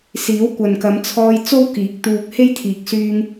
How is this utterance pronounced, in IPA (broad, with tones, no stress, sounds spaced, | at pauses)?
s iː˨˥ w kʷ ɐ˨ n k ɐ˨˧ m t͡sʰ ɔː˧ j t͡s o˥ w k iː˨˥ k̚ t̪ uː˧ k̚ h e˥ j t̪ʰ iː˨˥ k̚ s yː˧ ŋ